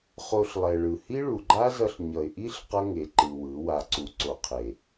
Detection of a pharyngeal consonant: absent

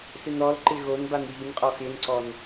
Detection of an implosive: absent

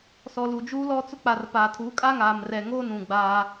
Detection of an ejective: present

